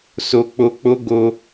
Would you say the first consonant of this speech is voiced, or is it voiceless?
voiceless